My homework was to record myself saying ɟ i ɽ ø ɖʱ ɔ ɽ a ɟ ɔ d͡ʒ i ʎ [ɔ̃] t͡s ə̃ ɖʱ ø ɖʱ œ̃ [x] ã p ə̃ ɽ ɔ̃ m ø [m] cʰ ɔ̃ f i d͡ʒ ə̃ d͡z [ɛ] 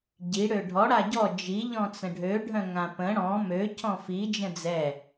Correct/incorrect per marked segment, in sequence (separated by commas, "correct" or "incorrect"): correct, incorrect, incorrect, correct